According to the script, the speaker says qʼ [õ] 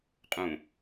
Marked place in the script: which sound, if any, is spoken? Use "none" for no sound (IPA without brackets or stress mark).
ũ